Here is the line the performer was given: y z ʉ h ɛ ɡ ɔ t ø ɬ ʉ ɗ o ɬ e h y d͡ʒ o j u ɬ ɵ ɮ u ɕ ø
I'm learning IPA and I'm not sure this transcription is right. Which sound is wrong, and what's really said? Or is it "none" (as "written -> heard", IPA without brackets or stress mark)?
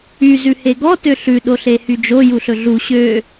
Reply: ɛ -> e